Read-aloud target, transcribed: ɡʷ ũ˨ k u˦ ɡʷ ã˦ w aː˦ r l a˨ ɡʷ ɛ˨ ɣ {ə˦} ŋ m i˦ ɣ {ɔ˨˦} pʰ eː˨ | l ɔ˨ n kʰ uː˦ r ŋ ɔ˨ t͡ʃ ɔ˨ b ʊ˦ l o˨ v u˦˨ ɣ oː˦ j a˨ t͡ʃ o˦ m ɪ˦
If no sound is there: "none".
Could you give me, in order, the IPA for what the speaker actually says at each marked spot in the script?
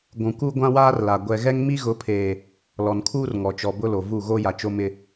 ɛ˦, ʊ˨˦

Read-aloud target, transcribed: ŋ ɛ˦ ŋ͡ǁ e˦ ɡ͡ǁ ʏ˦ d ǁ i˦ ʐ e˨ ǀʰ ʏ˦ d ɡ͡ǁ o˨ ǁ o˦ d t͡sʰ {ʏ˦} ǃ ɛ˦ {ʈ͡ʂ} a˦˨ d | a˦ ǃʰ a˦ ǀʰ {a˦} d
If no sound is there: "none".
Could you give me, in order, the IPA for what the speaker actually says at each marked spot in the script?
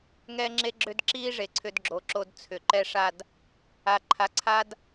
ʏ˨, ʂ, a˦

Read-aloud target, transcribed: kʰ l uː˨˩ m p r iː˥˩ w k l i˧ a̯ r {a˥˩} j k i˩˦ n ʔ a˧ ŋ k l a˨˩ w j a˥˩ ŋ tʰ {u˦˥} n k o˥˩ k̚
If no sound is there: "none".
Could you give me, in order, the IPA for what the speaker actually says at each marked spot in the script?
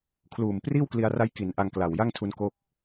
a˦˥, u˧

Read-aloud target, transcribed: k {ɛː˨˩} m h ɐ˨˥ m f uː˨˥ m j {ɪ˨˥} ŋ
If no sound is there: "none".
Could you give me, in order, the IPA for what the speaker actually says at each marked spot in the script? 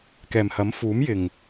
ɛː˨˩, ɪ˨˩

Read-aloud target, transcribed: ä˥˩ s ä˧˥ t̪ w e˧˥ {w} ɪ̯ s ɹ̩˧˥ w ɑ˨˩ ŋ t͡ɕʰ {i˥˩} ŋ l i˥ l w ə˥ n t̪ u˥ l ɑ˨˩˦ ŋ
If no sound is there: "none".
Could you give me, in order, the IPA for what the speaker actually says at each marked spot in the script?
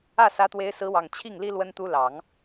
none, i˥˩

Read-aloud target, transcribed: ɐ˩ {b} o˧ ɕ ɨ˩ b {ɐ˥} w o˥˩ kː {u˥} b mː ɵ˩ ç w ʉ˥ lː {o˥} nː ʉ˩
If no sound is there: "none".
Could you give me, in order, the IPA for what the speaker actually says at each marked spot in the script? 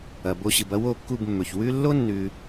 b, ɐ˥, u˥˩, o˥

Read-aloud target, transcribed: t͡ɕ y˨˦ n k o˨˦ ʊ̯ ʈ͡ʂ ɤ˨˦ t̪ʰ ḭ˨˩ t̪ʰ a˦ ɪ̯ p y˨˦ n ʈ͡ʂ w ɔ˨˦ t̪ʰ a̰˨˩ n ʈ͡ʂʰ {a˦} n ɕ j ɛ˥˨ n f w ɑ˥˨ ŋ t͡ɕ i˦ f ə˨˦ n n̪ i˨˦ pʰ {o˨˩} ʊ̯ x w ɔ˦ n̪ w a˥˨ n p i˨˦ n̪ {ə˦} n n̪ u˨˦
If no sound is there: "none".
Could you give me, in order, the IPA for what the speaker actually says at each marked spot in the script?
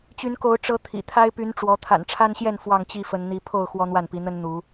a˦, o˥˨, ə˦

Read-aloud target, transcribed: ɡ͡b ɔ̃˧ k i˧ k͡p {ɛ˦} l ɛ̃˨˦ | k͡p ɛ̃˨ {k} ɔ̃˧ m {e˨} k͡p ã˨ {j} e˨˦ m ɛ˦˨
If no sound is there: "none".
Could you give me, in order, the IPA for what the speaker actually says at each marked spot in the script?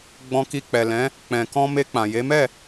ɛ˨, k, e˧, j

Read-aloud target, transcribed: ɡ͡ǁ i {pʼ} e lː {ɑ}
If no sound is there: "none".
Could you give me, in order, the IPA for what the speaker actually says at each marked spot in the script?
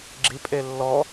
pʼ, ɔ

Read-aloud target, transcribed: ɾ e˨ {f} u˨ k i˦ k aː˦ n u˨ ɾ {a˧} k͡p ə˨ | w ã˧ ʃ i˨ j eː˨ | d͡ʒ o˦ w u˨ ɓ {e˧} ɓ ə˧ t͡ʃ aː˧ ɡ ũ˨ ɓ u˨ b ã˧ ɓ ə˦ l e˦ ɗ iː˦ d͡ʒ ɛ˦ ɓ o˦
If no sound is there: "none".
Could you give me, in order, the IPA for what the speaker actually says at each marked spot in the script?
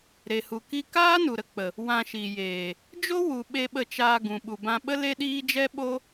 h, ə˧, e˧

